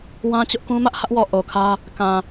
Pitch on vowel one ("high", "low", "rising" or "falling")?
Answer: high